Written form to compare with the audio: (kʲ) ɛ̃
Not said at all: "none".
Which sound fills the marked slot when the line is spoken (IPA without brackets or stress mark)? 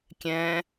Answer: kʲ